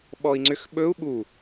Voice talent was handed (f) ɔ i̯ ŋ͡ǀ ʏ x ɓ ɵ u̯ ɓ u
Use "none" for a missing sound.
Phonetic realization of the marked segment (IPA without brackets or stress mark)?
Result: ɓ